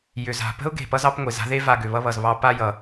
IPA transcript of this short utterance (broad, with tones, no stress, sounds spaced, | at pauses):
j ʏ˩ z a̤˩ p ə̤˦ ʊ̯ ɡ e̤˩ p ʌ˦ z ɑ˦ p ŋʷ e˩ z a̤˥ ð e˥ v a˨ ɡ ʏ˩ β ʌ˥ β ʌ˩ z β ɑ˦ p a˥ j ʌ˩